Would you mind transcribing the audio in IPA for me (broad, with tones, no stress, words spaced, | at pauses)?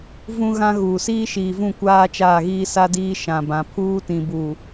vũ˦ɣã˦ ɣuː˨siː˦ʃiː˨vũ˦˨ kʷaː˦t͡ʃaː˦˨ɣiː˦sa˦ diː˦ʃã˨bã˨ pʰuː˦tĩ˨buː˨